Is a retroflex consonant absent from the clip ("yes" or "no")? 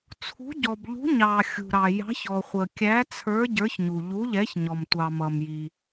yes